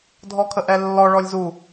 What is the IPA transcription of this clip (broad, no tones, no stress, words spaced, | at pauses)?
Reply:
dʱɔkʰəʔɛlːɔ ɭɔlʲzu